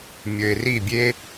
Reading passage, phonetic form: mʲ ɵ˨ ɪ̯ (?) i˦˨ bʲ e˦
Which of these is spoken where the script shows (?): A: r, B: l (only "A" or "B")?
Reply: A